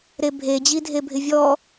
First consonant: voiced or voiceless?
voiced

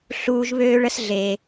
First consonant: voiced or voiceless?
voiceless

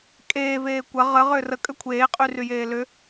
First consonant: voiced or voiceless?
voiceless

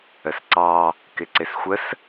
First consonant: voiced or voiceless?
voiceless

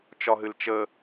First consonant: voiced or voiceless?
voiceless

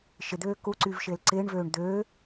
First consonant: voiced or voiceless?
voiceless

